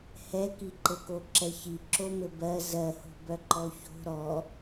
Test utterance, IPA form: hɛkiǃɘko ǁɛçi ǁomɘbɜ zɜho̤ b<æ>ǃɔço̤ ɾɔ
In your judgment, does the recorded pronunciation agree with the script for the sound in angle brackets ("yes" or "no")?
no